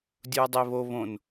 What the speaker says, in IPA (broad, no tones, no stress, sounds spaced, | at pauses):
dʲ u ɐ̯ dˤ e β o β õ n